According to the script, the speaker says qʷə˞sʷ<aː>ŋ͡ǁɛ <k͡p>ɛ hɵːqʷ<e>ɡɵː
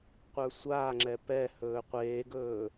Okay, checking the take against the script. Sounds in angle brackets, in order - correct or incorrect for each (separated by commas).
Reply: correct, incorrect, incorrect